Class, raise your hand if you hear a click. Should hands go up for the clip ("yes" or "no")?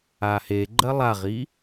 yes